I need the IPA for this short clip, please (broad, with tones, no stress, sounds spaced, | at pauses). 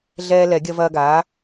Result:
ɮ ɛː˦ l ɛ˨˩˦ ɡʲ ɐ˦ v ɐː˦ ɡ aː˩˥